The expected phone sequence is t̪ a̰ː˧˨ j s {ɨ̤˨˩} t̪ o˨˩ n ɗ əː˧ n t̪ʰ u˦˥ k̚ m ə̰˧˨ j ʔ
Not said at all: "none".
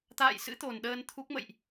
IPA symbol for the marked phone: ɨ̰˧˥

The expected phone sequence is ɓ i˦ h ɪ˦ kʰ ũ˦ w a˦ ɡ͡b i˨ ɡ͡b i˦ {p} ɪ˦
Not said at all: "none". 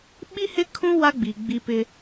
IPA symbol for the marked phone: p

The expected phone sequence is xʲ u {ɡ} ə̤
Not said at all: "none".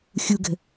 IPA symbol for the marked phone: ɡ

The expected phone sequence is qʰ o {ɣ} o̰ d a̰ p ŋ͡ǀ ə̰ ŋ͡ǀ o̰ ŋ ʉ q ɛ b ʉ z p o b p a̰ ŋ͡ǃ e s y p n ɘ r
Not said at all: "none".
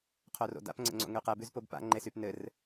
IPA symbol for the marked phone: r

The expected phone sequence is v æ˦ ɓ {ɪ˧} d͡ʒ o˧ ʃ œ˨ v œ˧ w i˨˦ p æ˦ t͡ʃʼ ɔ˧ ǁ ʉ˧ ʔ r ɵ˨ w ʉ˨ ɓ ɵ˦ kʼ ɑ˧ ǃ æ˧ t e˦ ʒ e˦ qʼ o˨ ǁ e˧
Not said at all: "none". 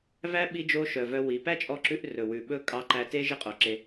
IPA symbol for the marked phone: i˧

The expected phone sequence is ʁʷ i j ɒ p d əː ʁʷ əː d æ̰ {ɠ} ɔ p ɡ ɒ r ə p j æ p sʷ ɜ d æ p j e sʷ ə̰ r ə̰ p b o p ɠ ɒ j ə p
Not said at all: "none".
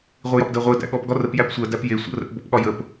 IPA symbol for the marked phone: ɠ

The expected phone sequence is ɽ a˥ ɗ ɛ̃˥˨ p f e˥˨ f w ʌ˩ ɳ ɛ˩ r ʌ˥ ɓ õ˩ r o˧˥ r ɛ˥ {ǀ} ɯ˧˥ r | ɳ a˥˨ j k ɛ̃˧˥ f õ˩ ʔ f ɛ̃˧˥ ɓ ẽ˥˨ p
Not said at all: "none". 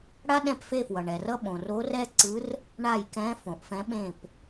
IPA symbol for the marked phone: ǀ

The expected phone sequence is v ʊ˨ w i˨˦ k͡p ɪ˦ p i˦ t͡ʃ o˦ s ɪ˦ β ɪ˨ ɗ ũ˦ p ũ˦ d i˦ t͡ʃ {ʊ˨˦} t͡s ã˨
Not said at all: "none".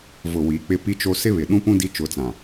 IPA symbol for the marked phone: ʊ˨˦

